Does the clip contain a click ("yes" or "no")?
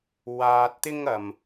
no